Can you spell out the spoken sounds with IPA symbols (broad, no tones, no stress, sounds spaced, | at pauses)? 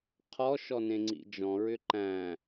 qʰ ɔ ʃ ɔ n ẽ ŋ͡ǀ ḭ d͡ʒ ɔ̃ ɹ ʏ ǃ æ̃